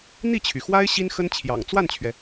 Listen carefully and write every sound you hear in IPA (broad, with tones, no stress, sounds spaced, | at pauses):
n̪ i˥˩ t͡ɕʰ y˩ x w a˥ ɪ̯ ɕ i˥ n x ə˥ n t͡ɕʰ j ɑ̰˨˩ ŋ t͡s w a˥˩ n t͡ɕʰ ɥ ɛ˩